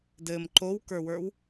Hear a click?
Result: yes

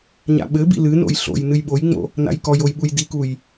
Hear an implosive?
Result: yes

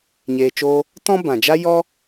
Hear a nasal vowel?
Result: yes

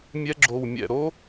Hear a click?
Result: yes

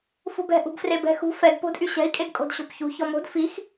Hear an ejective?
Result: yes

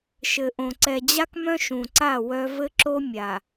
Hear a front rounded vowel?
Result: yes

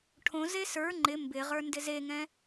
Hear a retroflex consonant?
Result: yes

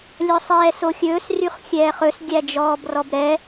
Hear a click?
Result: no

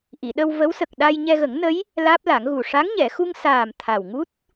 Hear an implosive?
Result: yes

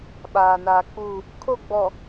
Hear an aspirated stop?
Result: yes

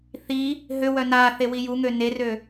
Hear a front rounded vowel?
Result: yes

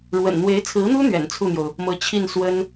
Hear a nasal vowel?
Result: no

